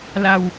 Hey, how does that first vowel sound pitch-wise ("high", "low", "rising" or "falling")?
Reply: low